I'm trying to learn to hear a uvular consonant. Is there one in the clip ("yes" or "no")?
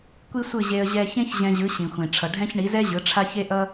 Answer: no